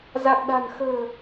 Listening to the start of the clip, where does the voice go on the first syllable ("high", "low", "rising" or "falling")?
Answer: low